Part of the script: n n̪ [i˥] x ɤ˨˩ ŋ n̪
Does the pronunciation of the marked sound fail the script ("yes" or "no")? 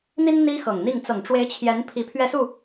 no